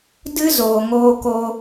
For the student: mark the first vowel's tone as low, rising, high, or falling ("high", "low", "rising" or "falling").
high